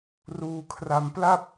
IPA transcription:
r uː˧ kʰ r a˧ m p l a˥˩ p̚

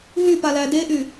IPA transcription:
ɦ y p a l æ d e ʔ y

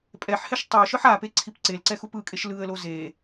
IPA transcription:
pʼ ɛ ħ h ɛ ʃ tˤ u ʃ ɯ ħ a p e ǀʰ i p ǀ e l ǀ ɛ x u p ɯ kʼ e ʃ l ɯ ə̯ l o z e

